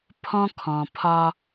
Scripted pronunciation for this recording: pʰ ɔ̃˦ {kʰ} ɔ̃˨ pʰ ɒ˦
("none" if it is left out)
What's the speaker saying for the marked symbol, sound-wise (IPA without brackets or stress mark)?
kʰ